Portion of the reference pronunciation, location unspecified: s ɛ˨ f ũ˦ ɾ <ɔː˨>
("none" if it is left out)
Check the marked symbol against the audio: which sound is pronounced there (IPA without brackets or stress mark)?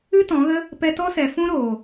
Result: oː˨